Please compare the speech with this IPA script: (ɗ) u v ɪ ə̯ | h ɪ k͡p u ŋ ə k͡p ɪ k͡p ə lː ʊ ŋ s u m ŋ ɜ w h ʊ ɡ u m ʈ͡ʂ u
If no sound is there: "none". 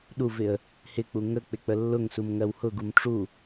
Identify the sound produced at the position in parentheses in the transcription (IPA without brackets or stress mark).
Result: ɗ